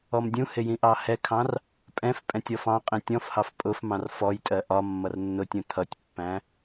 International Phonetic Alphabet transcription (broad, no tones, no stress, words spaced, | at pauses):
ɔmdʲũhɪ jĩʔɑhɛkʰɑ̃r | pʼɛ̃f pʼɛ̃tʲɔfɑ̃qʼĩ tʲɔ̃fhɑf pʼʊfmɑ̃r fɔjtʼɜ ʔɒ mːʌrnːʊtʲũ tʰʌtʲpːæ̃